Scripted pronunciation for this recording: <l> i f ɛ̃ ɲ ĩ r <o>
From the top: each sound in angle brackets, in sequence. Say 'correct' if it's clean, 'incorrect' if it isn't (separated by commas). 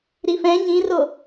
incorrect, correct